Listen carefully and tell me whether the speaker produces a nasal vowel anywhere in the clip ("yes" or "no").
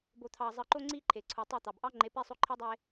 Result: no